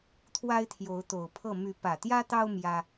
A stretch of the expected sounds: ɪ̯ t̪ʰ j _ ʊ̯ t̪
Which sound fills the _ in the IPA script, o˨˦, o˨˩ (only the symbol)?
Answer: o˨˦